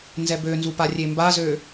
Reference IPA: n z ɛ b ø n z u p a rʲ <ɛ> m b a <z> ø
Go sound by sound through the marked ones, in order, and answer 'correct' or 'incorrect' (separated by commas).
incorrect, correct